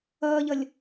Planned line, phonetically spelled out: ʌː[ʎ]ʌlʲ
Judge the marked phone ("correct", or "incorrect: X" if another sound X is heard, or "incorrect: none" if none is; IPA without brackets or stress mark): correct